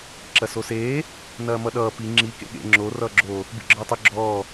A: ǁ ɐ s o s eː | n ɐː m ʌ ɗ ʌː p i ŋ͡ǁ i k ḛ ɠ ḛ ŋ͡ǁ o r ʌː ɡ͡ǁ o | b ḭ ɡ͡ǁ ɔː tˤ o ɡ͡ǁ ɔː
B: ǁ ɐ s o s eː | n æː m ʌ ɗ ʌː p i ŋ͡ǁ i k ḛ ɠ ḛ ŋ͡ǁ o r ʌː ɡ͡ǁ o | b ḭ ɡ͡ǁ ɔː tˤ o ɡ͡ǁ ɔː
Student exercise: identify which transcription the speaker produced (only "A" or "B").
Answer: A